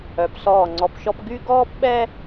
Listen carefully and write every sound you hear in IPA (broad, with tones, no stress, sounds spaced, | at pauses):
œ˩˧ p s ɔː˧˩ ŋ͡ǀ ɔ˧ p ʃ ɔ˥ p ɡ y˥ ɡ ɔː˥ p ɓ ɛ˥